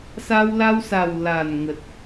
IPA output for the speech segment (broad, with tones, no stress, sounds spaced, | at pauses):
s a˧ w l a˧ w s a˨˩ w l a˨˩ n ŋ ə˨˩ t̚